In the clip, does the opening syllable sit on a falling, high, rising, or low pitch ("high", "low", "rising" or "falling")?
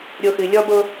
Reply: low